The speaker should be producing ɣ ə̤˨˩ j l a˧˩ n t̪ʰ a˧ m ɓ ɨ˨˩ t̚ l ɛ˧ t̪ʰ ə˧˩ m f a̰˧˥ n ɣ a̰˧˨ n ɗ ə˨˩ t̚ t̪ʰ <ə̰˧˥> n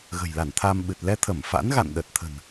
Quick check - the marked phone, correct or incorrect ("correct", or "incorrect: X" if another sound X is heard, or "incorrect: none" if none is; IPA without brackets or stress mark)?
incorrect: ə̤˨˩